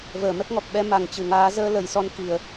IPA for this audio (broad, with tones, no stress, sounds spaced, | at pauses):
v əː˧˩ m ɛ˦˥ k̚ ŋ ɔ˨˩ k̚ ɓ ɛ˨˦ m a˨˩ ŋ t͡ɕ ɨ˨˩ ŋ aː˨˦ z əː˧ l ə˨˩ j s ɔ˧ n k i˧˩˨ ə̯